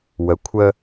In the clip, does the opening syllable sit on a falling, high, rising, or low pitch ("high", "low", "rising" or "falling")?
rising